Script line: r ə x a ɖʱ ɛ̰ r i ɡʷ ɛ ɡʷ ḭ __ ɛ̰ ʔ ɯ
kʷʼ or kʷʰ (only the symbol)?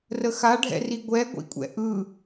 kʷʼ